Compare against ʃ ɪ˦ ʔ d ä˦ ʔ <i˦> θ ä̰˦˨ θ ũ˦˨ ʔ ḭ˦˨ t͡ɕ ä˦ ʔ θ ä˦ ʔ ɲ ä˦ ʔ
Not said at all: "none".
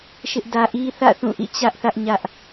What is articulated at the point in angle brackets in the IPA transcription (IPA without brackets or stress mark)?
i˦